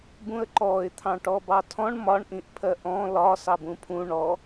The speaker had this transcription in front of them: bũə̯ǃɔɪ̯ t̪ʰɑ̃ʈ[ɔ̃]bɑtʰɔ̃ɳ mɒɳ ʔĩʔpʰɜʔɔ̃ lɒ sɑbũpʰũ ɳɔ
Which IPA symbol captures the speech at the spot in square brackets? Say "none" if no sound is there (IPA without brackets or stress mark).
ɔ